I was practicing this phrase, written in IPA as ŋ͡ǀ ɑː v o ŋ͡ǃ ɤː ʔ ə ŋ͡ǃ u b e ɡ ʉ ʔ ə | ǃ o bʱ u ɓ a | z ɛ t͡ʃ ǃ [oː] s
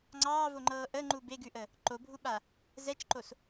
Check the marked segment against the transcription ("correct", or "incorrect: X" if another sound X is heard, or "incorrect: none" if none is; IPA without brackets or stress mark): incorrect: o